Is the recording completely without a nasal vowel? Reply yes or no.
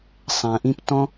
no